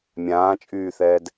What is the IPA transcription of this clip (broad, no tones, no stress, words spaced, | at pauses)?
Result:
mʲãːt͡ʃʼyːθɛːd